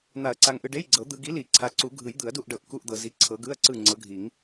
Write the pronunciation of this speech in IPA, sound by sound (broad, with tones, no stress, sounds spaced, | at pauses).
n̪ a˨˩˦ ɐ̯ ǀ a˨ ŋ ʔ ɯ˨ ɖ e˧˥˧ j ɡ͡ǀ ɤ˨˩˦ d̪ ɯ˨ ɡ i˨˦ l i˨˩˦ ǀʰ a˨˦ ǀ u˨˩˦ ɡʱ ɯ˨˩˦ j d̪ ɯ˨˩˦ ɐ̯ d u˦˨ ʔ ɖ ɤ˨˩˦ ʔ k u˧˥˧ ʔ d̪ ɤ˨ z i˨˦ ǀʰ ɤ˨˦ ɡ ɯ˧˥˧ ɐ̯ ǀ ɯ˦˨ ŋ͡ǀ ɤ˨˦ ɡʱ i˨˩˦ ŋ